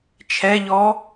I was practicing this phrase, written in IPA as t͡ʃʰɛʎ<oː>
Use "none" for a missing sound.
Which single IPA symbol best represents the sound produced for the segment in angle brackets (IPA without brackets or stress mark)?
ɔː